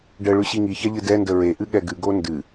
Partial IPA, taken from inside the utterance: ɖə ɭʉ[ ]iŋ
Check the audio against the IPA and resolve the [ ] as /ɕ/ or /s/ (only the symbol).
ɕ